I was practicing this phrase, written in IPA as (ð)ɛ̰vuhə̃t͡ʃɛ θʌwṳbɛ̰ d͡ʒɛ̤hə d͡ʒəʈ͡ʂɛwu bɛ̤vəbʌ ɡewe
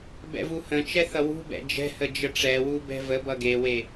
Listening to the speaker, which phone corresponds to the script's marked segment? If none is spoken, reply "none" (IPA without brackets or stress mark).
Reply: b